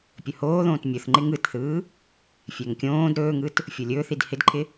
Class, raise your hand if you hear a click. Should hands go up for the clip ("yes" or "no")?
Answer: yes